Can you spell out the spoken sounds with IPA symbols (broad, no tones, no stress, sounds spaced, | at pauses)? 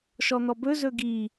ʃ ɔ n̪ ɔ b ɵ z ɵ ɡ i